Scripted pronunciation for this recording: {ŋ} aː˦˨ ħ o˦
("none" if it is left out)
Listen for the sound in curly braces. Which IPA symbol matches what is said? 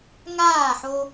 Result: ŋ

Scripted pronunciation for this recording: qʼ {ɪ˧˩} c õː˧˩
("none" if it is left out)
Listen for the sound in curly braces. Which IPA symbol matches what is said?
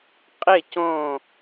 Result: ɪ˧˩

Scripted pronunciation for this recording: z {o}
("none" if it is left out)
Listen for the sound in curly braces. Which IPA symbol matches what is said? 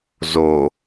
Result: o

